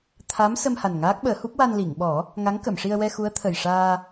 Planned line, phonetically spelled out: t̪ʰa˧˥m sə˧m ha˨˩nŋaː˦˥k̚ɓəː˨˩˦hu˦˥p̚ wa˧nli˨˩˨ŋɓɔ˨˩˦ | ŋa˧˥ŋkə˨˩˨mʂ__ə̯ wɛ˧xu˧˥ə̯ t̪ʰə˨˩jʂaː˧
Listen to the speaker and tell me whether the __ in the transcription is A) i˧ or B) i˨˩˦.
A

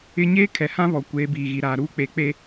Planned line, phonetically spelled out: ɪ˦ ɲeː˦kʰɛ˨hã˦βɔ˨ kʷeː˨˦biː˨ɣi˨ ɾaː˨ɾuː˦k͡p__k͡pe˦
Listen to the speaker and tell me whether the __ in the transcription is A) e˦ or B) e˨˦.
B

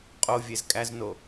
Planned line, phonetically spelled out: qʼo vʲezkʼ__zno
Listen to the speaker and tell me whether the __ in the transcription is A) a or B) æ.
B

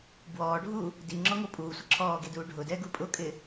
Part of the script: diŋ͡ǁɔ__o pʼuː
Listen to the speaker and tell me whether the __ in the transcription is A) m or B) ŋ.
B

